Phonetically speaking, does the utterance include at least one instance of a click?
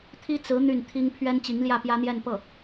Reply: no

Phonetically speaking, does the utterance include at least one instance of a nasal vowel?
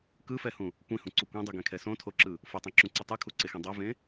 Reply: yes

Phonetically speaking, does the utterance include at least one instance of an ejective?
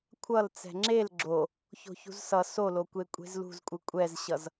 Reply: yes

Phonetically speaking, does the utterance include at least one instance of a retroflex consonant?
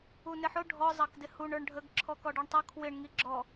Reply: yes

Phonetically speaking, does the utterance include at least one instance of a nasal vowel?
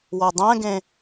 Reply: yes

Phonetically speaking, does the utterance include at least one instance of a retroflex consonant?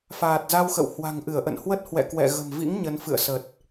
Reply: no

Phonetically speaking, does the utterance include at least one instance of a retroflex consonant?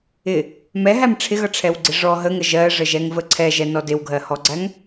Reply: yes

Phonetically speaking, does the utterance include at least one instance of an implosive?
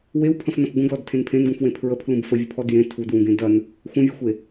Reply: no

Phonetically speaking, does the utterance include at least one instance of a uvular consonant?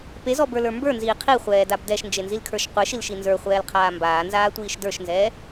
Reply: yes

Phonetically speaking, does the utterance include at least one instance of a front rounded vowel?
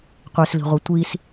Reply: no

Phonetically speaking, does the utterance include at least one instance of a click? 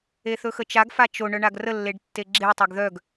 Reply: yes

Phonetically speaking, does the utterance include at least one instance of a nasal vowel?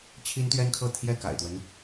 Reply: no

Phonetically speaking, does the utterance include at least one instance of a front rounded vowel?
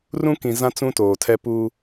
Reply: no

